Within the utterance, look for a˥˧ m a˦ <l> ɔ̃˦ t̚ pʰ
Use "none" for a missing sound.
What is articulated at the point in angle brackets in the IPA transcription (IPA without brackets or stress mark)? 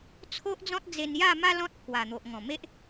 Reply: l